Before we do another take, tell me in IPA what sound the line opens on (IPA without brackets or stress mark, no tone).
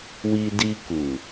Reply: w